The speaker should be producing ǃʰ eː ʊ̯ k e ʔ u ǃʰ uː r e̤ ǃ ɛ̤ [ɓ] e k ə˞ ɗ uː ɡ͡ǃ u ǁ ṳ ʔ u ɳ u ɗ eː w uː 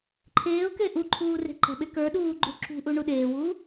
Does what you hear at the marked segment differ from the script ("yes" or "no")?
no